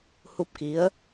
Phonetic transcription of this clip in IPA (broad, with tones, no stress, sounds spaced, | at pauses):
h u˦˥ p̚ k i˧˥ ə̯